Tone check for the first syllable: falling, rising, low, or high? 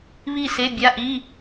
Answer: falling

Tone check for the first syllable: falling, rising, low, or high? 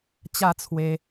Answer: falling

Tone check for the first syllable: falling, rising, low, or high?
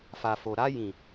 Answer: low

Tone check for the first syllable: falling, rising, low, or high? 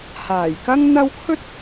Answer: low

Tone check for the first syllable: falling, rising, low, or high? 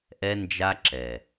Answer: high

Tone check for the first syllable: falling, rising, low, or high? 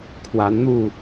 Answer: rising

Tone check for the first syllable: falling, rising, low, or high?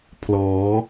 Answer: rising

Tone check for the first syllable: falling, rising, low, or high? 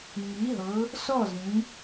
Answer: rising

